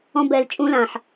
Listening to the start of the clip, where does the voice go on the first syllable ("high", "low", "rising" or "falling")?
high